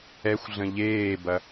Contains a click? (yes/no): no